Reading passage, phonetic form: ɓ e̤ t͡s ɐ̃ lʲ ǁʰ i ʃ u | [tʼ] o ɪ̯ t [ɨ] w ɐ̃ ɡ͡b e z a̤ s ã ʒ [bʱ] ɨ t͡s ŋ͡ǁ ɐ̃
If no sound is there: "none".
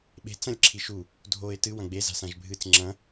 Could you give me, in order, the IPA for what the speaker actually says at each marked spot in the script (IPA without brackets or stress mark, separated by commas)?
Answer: dʱ, ɨ, bʱ